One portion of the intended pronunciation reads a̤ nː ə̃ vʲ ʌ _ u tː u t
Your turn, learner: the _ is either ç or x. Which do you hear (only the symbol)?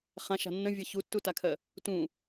ç